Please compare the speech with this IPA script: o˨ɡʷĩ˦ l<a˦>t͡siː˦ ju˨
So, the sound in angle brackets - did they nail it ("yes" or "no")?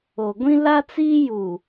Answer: yes